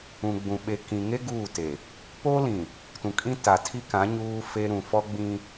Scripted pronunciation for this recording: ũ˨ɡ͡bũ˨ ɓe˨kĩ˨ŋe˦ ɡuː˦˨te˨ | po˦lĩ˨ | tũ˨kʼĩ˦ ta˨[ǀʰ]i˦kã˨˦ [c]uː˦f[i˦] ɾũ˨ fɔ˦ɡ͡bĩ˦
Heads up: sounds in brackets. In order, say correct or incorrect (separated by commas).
incorrect, incorrect, incorrect